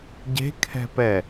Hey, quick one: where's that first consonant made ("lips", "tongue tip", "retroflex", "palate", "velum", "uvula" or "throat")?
palate